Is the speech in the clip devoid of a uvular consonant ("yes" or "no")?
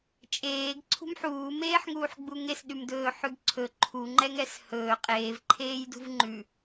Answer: no